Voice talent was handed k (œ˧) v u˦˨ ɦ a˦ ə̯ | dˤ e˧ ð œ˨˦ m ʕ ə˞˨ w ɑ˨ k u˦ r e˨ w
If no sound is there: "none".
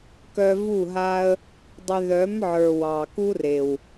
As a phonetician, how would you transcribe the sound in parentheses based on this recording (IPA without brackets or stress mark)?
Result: œ˧